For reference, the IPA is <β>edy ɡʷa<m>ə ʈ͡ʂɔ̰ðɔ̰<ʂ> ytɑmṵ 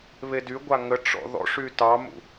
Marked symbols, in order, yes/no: yes, no, yes

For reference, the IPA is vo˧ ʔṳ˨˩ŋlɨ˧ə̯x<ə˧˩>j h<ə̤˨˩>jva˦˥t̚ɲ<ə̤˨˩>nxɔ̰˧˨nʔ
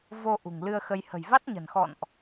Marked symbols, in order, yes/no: no, yes, yes

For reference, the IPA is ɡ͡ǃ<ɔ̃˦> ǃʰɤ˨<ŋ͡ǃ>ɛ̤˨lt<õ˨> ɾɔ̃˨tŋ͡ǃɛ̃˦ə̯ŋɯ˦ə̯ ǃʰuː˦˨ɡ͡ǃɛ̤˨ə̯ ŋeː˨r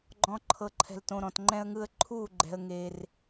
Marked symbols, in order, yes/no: no, no, yes

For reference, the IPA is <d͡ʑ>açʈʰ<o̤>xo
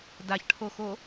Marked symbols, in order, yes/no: no, no

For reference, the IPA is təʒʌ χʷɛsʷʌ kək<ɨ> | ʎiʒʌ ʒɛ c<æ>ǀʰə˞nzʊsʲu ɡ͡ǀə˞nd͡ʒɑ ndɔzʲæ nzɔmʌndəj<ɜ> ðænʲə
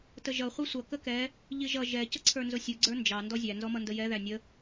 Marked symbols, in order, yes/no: no, no, no

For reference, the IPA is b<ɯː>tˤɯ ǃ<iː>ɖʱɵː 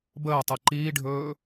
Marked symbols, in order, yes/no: no, yes

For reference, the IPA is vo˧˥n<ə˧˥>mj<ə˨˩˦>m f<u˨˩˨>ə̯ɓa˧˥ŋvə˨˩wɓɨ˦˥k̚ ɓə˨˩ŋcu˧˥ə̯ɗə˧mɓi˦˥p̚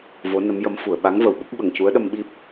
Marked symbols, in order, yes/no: yes, no, yes

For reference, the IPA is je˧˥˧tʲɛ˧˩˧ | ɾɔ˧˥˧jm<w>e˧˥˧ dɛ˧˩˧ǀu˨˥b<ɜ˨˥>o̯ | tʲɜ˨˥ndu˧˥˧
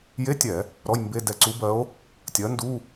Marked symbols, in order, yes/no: no, yes

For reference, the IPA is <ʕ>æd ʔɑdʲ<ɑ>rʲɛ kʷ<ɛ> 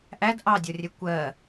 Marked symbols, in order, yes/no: no, no, no

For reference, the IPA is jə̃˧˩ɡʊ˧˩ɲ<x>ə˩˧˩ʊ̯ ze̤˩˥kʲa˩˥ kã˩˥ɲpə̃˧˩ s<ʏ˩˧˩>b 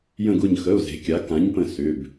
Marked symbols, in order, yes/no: yes, yes

